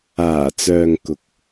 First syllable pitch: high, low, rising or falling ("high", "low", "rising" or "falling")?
low